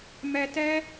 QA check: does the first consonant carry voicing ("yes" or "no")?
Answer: yes